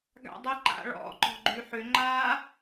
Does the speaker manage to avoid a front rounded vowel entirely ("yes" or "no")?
no